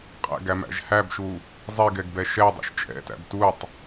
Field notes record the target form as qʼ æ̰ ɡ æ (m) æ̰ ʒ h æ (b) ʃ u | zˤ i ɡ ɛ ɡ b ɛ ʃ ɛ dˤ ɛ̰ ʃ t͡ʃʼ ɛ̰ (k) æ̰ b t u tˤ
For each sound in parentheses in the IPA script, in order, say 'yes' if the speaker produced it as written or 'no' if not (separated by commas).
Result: yes, yes, no